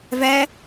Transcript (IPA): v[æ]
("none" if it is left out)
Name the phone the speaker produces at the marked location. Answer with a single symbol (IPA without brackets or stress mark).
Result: æ